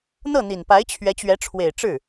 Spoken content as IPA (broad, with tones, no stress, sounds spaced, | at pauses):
n̪ ɤ˥˩ n̪ i˨˩ n p a˧˥ ɪ̯ t͡ɕʰ ɥ ɛ˧˥ t͡ɕ ɥ ɛ˧˥ ʈ͡ʂʰ w e˨˩ ɪ̯ ʈ͡ʂ ɻ̩˥˩